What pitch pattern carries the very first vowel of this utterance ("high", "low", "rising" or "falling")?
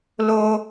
high